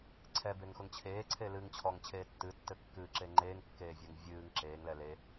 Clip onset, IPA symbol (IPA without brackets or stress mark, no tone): ǀʰ